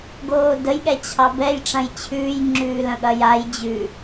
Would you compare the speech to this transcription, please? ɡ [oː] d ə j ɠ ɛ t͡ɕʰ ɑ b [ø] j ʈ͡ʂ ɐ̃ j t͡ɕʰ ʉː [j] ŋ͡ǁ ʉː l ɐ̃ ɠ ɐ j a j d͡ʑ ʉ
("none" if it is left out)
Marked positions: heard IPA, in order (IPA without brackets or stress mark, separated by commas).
oː, ɛ, j